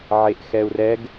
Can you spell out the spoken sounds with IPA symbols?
ʕeʔxɛu̯rɛɡ

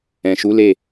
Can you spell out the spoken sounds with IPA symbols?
ɛ̃˨ʃu˨˦le˦˨

